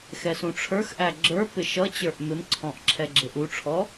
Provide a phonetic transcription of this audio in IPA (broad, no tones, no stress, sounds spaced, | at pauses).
x ɛ s ũ ʈ͡ʂʰ ə˞ x ʔ æ ɡ͡ǁ ə˞ p ɪ ʃ ʌ t͡ɕ ə˞ ʔ m ɪ m ǀʰ ɔ̃ ʔ ǁʰ ɛ ɡ͡ǁ ɪ ʔ u ʈ͡ʂʰ ɔ